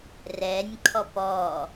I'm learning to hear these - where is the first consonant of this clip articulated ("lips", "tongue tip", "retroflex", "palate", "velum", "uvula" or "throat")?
tongue tip